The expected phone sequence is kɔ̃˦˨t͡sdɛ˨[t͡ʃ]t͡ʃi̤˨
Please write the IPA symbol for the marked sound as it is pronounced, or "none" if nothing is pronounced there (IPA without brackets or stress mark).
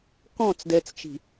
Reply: t͡s